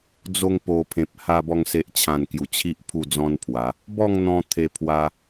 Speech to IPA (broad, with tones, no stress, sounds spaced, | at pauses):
d͡z o˧ ŋ p o˨˩ pʰ ẽ˨ p̚ h a˧ b ɔ˧ ŋ s e˨ ʔ t͡ɕʰ ã˨˩ n k j u˨˩ t͡ɕʰ i˦ ʔ pʰ u˥˧ d͡z ɔ̃˦ n pʰ w a˨˦ | b ɔ˥˧ ŋ n̪ ɔ̃˧ t̪ʰ e˧ pʰ w a˧